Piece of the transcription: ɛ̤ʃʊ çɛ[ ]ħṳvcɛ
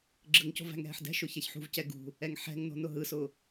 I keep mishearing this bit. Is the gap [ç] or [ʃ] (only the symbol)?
ç